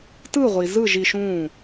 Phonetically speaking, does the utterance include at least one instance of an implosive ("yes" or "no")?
no